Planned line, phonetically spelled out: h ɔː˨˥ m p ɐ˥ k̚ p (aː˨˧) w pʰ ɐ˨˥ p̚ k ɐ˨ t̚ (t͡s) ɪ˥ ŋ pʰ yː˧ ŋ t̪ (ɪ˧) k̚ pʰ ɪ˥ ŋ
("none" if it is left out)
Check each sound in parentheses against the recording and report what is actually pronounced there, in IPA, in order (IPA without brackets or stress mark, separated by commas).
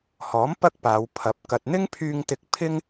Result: aː˨˧, n̪, ɪ˧